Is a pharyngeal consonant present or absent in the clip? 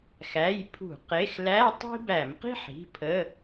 present